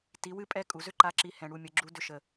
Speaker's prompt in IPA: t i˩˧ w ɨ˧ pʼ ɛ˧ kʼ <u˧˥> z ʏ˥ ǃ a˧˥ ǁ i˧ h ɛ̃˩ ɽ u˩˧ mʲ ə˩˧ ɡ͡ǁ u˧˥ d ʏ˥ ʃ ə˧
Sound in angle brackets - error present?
yes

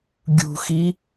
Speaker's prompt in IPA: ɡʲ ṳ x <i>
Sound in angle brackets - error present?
no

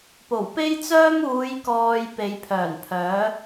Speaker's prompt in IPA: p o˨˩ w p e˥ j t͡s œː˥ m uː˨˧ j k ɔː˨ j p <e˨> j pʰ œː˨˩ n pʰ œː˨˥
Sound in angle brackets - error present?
yes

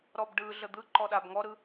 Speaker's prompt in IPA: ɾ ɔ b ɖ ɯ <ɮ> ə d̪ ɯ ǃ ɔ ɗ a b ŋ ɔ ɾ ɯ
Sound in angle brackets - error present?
no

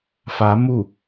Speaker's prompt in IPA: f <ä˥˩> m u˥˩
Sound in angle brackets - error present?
yes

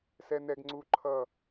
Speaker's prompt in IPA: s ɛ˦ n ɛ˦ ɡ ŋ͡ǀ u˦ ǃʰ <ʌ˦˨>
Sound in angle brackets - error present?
no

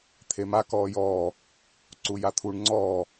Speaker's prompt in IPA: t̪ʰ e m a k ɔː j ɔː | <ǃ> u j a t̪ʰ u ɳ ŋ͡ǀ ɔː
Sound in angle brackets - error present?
yes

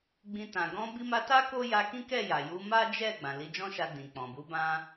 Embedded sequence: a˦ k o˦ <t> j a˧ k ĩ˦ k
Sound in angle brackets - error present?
yes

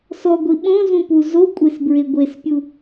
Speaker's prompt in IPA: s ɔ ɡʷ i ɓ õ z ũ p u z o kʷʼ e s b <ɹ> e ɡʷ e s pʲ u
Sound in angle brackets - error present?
no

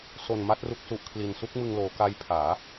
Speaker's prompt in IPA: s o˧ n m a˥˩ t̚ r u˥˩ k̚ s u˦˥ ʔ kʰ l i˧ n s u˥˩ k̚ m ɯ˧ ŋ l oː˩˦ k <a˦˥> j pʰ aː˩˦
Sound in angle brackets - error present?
no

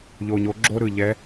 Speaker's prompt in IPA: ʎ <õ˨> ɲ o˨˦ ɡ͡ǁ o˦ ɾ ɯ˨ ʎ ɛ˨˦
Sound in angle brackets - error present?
yes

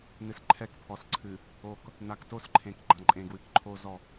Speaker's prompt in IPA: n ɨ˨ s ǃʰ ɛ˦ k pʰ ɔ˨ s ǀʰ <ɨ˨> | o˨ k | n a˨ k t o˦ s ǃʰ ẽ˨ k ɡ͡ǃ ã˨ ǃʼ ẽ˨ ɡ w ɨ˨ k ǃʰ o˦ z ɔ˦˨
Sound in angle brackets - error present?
no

